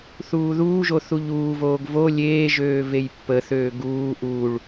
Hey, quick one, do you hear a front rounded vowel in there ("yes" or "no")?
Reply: yes